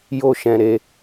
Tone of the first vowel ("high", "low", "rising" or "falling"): high